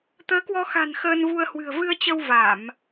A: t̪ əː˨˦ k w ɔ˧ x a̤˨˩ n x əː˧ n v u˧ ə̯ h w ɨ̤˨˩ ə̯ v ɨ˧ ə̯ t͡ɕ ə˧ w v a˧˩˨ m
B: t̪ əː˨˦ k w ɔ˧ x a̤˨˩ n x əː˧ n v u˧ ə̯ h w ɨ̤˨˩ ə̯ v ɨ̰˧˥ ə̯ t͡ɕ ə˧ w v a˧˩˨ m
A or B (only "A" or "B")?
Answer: A